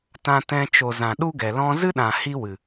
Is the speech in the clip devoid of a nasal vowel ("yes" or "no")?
no